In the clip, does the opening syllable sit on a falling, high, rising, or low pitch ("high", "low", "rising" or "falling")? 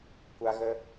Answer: high